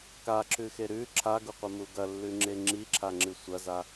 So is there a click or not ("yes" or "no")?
yes